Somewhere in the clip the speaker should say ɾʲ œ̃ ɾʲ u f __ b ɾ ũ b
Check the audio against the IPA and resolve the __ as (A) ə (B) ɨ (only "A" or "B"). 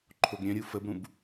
A